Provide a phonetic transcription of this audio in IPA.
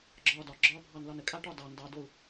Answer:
ɡ͡ǁ ɒː d ɒ ɡ͡ǁ ɒː bʱ ɑ n l ɒ n ə kʼ a ʈ ɒ d ɑ n d ɑ d o u̯

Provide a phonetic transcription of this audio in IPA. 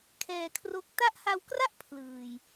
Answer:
kʰ ɛː˧ kʰ r o˦˥ k̚ t a˦˥ ʔ h a˧ w k r a˥˩ ʔ pʰ l ɯː˨˩ j

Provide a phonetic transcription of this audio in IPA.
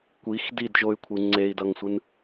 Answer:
kʷ i x d i d ʒ o y̯ kʷʰ ɯ ŋ͡ǀ e i̯ d ʌ ŋ sʷ ɯ n

